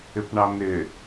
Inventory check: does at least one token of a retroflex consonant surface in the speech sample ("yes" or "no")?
yes